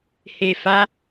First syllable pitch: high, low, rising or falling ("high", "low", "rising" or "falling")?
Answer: low